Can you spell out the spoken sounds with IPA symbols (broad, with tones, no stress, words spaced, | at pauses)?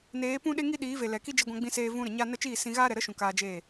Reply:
neː˨˦pũ˦ɗe˦ŋi˦ ɗiː˨˦ve˨ lɛ˨ki˦ d͡ʒi˧ɡʷã˧ɡ͡bĩ˧seː˧ vũ˧ ɾə˨ɲa˦ nə˦ t͡ʃiː˦˨ sĩ˧ ɣaː˦ɾɛ˨ ɾə˦ʃũ˨ kaː˧d͡ʒeː˦˨